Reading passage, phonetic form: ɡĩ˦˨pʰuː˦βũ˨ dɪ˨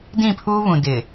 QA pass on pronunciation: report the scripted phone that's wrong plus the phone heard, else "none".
ɡ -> d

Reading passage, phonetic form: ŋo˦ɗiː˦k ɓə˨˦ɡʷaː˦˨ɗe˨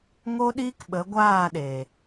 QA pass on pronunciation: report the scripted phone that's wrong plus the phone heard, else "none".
none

